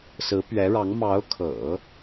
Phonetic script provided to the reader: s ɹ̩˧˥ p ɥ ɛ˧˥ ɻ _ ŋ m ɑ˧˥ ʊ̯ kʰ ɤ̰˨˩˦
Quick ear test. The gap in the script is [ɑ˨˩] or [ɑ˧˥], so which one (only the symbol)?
ɑ˧˥